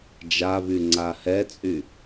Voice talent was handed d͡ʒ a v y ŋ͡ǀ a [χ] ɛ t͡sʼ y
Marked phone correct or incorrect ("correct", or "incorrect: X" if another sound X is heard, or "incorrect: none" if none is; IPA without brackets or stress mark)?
incorrect: h